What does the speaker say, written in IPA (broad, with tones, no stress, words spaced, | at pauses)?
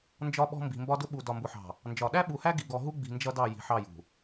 nd͡ʒɒ˦ɓɔ̤˦ mbi̤˨mbɒ˦dʊ˦ ɓu˨ dɒ˨mbʊ˨ħɑ̤˨ | nd͡ʒɒ˨ ɗæ˦ɓu˨hæ˦ ɡi˨ɡɔ˨ɦu˦ɡ͡bi̤˨ nd͡ʒʌ˦dɑ˦˨ ji̤˨ħɑ˦˨jṳ˨